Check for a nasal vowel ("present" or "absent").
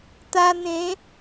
present